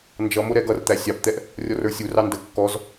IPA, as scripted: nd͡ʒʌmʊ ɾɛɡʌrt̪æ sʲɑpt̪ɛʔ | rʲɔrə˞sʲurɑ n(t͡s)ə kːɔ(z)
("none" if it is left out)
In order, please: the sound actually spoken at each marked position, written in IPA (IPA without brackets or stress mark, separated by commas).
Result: d, z